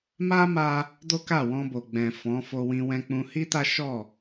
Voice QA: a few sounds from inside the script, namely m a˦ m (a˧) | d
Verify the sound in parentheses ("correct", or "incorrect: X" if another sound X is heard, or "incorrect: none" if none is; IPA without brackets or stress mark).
correct